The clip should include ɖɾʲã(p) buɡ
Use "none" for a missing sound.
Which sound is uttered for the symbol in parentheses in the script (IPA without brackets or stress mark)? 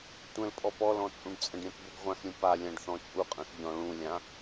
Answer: p